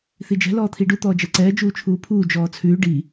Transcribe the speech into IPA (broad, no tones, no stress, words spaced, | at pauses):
θid͡ʒɛ̤ lɔːt̪ʰiɖu t̪ɔːd͡ʒɛǀɛː d͡ʒuːt͡ʃʰuːpʰuː d͡ʒɔːt͡sʰʉː ɖi